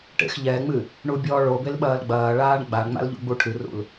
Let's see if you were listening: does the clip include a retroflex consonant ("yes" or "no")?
yes